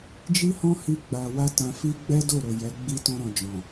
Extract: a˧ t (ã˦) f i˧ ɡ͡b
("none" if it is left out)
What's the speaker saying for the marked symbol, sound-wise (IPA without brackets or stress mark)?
ã˨